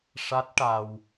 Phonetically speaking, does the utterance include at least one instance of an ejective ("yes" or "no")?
no